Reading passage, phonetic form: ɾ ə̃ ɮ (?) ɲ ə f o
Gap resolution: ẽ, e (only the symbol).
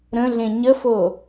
ẽ